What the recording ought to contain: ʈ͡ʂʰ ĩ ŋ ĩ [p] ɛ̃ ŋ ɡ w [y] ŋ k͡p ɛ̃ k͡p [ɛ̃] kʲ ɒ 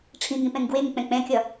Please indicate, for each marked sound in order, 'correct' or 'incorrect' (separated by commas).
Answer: correct, incorrect, correct